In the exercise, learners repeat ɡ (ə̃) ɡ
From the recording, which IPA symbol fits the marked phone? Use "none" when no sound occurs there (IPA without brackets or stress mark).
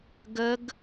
ə